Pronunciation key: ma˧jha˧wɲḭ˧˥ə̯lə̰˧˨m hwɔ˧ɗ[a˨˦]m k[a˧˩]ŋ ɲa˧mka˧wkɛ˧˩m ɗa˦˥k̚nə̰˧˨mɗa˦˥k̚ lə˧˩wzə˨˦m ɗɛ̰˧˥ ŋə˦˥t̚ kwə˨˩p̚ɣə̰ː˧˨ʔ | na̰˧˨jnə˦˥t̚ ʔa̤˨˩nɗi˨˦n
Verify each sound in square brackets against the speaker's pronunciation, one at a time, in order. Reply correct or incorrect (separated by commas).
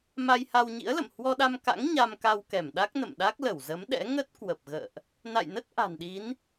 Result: incorrect, incorrect